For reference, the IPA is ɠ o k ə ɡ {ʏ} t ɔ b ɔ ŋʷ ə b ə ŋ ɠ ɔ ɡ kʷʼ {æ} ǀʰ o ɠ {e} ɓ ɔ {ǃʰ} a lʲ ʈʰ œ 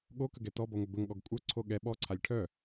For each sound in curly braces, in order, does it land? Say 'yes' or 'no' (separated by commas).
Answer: no, no, no, no